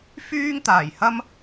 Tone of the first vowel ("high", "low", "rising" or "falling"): high